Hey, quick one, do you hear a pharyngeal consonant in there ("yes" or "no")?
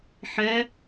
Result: yes